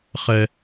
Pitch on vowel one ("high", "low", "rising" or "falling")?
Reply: high